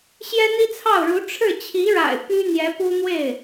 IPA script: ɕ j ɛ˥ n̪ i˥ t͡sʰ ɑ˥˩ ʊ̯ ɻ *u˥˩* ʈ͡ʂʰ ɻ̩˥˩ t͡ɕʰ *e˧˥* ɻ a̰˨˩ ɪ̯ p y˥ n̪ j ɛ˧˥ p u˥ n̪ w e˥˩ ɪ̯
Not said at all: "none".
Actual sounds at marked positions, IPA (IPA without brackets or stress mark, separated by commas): u˧˥, i˧˥